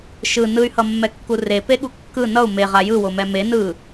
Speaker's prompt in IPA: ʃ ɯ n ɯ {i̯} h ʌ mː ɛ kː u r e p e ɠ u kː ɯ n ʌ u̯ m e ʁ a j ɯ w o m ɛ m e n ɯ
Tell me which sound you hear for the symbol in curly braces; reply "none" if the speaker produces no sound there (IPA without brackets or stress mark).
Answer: y̯